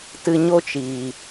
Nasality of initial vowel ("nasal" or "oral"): oral